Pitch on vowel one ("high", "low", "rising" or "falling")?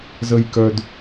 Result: low